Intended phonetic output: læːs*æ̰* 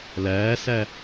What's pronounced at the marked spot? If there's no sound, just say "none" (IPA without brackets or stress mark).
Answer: æ